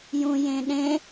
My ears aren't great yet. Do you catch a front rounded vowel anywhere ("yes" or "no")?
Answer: no